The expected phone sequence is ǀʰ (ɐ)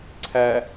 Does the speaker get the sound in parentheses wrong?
yes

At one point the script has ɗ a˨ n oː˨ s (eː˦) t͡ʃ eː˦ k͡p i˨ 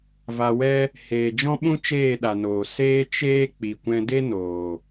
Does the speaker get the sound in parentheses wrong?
no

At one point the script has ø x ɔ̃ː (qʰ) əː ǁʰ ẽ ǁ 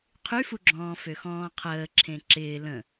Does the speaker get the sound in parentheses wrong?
no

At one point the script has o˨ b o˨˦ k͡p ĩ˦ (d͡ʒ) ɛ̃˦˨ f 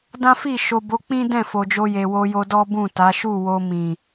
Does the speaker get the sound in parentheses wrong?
yes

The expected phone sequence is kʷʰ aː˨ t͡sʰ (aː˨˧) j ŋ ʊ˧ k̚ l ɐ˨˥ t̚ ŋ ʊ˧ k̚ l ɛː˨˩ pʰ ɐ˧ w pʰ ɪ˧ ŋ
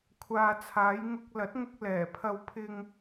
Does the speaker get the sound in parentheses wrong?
no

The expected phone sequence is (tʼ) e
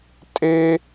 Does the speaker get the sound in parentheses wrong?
no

